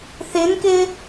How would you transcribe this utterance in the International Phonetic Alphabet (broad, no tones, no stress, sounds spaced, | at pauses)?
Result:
θ ɪ n k ɪ